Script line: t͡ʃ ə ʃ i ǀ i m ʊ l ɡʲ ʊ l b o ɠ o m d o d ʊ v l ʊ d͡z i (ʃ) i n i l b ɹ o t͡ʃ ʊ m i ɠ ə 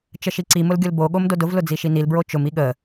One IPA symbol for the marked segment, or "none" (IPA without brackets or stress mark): ʃ